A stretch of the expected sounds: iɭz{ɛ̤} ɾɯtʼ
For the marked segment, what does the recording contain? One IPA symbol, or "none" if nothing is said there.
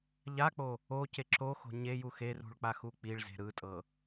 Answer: e̤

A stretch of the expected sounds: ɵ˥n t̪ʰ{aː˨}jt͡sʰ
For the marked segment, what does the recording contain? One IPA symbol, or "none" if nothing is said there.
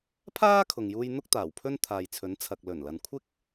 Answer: aː˨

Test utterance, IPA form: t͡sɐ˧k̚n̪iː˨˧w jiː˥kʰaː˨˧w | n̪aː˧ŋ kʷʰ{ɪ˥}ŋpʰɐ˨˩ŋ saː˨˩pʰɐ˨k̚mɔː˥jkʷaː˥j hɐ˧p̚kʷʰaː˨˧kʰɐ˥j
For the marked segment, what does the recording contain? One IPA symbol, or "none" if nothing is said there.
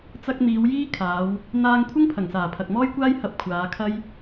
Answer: ɪ˥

